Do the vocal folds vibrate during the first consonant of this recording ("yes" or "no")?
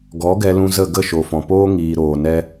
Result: yes